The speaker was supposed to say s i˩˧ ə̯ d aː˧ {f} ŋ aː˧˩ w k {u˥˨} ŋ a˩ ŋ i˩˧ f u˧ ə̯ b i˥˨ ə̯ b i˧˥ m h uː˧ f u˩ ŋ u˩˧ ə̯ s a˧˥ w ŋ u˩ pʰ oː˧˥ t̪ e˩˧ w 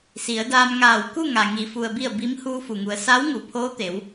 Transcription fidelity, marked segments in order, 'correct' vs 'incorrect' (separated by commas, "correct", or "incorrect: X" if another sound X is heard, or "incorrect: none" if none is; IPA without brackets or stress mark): incorrect: m, correct